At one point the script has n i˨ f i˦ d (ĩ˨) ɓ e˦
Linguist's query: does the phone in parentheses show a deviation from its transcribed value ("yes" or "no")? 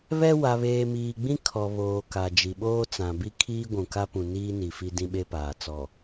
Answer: yes